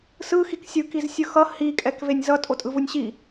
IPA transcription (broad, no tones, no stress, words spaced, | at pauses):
sɯxik sʲɯkiz sʲɯxʌ hikʼɛk venʲzʌ tʼotʼɯvunʲɕi